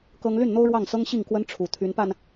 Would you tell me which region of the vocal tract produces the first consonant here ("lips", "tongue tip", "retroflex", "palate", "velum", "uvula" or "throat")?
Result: velum